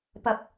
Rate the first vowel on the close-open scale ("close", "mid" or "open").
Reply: open